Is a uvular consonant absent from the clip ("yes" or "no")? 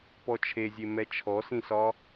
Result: yes